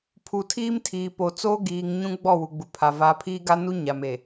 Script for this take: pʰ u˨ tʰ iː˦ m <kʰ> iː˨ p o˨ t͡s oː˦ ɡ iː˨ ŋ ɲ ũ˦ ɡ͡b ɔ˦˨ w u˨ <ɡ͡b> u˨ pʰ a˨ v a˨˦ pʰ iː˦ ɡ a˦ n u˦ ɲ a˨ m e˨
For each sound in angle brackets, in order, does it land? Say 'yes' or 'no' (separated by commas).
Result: no, yes